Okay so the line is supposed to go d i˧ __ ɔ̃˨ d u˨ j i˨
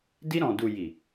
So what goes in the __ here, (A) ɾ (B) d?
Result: A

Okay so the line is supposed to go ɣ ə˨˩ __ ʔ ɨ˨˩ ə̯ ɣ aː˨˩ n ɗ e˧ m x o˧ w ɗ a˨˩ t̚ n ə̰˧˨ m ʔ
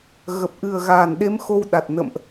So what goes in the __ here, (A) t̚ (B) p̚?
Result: B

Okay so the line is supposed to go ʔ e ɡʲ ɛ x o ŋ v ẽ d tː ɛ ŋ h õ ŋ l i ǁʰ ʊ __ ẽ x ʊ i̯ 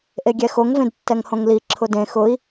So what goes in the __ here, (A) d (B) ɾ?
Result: A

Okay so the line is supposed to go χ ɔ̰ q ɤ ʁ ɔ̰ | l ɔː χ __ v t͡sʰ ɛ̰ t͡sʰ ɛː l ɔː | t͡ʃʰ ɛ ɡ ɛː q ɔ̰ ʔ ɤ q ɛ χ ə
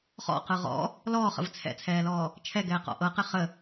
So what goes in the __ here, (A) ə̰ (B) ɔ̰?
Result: A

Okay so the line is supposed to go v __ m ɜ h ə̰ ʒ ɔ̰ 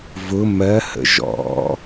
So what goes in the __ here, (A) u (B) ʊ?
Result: B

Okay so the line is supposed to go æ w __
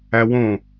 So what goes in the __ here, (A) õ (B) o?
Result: A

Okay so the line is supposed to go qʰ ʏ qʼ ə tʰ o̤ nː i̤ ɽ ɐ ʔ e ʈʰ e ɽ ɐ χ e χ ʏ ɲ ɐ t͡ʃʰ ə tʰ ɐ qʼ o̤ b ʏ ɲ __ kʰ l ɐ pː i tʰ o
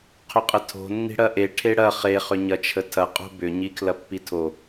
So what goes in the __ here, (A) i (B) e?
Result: A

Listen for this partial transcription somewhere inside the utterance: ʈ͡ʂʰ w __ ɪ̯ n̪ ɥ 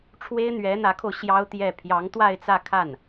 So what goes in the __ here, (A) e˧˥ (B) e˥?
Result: B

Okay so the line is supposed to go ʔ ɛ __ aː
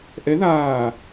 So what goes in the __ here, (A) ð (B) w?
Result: A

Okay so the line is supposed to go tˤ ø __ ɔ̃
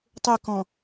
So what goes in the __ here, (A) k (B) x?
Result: A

